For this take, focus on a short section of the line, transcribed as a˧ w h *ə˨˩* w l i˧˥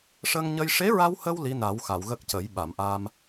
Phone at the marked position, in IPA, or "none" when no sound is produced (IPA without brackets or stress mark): ə˧